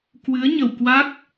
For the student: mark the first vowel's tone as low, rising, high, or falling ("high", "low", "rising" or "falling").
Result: rising